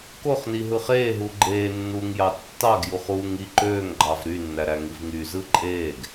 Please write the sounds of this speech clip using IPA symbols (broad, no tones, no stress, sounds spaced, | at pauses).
k o χ n i ɦ ɯ χ eː ɦ u ɡ͡ǃ eː nː uː ŋ j ɑ tː ɑ ɡ j u χ uː ŋ i ǃ øː ŋ ɡ͡ǃ ɑ v ɾ y nː æ ɾ æ ŋ i v ŋ y z ɯ ǃʼ eː ɡ